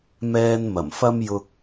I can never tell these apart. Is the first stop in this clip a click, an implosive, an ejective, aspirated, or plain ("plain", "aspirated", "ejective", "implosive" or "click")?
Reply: plain